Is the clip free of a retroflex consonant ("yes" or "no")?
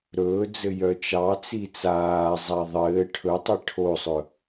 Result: no